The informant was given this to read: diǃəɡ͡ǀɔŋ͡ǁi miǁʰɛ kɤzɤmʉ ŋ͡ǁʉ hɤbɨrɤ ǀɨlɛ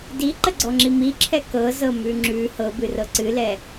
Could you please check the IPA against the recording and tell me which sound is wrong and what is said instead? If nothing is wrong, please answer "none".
none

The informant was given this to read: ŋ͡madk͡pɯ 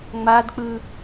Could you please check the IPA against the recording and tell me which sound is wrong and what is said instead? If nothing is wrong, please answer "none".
none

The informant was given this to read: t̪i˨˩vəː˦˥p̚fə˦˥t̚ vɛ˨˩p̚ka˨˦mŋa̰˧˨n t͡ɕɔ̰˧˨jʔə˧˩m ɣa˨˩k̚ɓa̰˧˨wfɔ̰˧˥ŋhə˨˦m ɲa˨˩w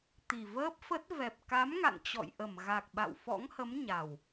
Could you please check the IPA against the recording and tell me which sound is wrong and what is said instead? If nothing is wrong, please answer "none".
none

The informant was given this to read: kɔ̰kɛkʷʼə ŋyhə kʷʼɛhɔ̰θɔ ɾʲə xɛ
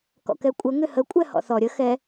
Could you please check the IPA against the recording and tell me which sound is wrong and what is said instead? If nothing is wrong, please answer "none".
y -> ʏ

